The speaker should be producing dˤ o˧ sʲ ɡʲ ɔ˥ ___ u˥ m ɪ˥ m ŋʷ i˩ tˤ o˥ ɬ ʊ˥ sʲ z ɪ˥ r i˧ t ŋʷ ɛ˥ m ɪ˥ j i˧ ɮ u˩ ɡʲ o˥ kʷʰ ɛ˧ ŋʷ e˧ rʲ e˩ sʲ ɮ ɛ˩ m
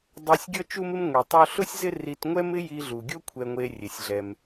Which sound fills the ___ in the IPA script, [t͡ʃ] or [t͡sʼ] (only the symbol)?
t͡ʃ